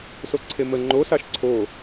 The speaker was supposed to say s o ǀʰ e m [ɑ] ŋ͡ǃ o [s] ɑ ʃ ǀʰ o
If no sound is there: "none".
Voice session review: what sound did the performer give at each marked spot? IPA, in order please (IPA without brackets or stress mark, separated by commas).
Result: ə, s